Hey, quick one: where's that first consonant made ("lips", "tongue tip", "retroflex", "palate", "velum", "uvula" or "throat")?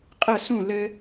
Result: uvula